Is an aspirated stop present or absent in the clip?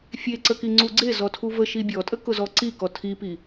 present